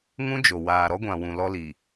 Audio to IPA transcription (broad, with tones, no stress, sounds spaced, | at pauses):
ŋ ũ˦ d͡ʒ o˨ w aː˨ ɾ ɔ˦ ɡʷ ã˨ w ũ˨ l ɔ˦ l i˨